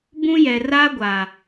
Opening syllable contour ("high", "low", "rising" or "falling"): high